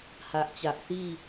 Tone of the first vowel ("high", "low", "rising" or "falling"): low